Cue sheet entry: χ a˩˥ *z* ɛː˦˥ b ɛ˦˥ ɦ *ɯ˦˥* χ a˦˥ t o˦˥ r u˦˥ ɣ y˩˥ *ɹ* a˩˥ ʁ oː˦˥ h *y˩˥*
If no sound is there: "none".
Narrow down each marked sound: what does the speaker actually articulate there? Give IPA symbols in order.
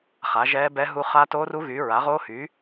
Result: ʒ, u˦˥, ɹ, y˩˥

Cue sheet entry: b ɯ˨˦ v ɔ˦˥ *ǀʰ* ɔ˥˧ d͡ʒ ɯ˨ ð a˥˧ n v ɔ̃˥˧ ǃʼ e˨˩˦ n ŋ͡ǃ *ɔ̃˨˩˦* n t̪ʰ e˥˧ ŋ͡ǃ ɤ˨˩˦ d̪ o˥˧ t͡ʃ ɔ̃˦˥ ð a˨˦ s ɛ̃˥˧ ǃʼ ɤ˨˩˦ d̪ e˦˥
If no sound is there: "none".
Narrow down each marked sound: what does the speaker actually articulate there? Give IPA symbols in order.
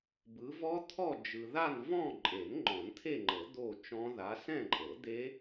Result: t̪ʰ, ɔ̃˨˩˦

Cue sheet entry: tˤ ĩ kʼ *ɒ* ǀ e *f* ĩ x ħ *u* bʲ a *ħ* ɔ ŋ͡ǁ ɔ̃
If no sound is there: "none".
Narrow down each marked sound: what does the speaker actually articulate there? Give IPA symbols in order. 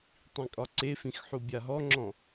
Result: ɒ, f, u, ɦ

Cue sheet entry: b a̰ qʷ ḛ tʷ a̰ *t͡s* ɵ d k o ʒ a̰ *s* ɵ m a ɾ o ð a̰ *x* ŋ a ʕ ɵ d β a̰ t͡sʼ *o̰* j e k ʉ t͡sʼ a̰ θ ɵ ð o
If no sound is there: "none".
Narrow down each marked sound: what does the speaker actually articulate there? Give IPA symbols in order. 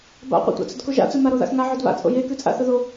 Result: t͡s, t͡s, x, o̰

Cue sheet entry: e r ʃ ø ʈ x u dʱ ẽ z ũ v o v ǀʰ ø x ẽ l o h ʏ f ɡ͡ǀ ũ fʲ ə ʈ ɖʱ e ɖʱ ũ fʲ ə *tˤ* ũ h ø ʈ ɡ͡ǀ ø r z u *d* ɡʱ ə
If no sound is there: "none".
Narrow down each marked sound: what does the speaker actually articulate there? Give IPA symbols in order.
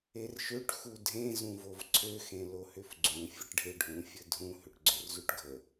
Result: dʱ, ʈ

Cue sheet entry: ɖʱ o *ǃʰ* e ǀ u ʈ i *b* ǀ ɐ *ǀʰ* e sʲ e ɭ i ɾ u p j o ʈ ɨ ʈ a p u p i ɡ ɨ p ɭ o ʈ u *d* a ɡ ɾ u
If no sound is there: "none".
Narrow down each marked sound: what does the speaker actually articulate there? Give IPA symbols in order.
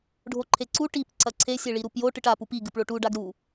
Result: ǃʰ, p, ǀʰ, ɖ

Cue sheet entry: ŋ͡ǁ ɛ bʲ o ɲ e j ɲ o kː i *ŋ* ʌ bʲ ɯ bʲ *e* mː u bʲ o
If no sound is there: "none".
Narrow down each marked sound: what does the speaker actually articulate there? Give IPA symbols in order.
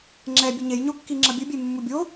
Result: ŋ͡ǁ, e

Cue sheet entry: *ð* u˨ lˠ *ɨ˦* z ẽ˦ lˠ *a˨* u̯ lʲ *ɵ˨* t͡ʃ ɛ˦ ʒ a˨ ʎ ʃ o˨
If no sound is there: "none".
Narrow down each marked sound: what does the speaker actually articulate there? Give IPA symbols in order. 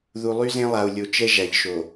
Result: ð, y˦, a˨, o˨

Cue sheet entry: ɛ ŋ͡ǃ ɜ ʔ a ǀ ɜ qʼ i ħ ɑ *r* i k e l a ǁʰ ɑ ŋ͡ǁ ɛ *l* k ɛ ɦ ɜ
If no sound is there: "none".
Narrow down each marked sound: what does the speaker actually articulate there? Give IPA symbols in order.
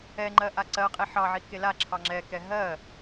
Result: ʕ, none

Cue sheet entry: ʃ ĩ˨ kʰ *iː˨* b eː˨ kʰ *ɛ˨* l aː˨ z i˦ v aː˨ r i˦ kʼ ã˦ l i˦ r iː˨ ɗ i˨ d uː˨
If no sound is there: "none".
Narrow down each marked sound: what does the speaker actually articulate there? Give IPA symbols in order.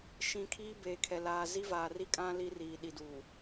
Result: iː˦, ɛ˨

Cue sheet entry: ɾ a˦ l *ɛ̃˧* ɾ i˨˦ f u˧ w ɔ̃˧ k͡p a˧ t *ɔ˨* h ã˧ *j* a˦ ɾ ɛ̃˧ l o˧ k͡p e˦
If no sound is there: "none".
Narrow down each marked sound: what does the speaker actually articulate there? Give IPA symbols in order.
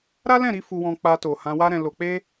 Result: ɛ̃˦˨, o˨, w

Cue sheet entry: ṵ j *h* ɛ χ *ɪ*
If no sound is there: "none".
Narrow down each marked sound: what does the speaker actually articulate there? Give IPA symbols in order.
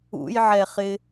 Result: ʕ, ɪ

